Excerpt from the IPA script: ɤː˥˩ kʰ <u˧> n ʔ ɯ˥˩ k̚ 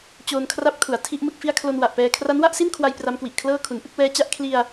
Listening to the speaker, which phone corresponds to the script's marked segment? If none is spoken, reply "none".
u˩˦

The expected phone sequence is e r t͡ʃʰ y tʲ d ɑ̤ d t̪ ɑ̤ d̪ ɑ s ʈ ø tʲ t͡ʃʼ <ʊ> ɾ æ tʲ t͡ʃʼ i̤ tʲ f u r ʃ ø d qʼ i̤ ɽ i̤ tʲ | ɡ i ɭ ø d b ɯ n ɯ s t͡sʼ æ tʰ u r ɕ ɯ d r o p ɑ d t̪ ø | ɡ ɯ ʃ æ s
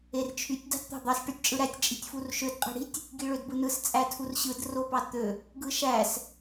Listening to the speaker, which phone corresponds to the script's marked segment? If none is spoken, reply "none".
ɯ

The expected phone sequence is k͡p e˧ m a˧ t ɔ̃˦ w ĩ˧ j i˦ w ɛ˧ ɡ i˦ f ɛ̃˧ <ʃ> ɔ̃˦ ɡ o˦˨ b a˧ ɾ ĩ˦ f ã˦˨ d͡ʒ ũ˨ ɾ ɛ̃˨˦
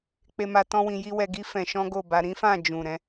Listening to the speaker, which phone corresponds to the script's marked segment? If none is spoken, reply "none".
ʃ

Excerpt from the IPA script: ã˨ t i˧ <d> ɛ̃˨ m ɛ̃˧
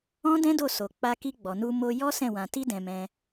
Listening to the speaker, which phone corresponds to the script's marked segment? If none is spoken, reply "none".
d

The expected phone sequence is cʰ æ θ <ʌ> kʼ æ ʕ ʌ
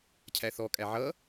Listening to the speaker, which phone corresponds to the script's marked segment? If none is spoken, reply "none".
ɔ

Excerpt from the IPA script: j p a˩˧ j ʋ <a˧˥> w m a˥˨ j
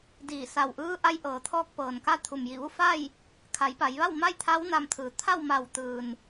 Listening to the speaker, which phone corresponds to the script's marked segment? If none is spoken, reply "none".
a˥˨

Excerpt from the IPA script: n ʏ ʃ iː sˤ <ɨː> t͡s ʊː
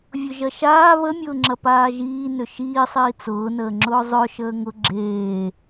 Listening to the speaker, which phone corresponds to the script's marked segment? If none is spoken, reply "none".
iː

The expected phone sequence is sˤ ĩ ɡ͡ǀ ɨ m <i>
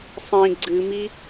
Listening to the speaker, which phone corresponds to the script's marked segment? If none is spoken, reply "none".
i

